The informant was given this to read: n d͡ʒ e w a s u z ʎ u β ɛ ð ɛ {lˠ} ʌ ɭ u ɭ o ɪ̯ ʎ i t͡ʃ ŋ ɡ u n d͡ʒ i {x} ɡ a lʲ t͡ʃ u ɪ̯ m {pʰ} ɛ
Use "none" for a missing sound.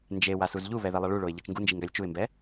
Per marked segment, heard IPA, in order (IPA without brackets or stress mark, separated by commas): lˠ, ŋ, b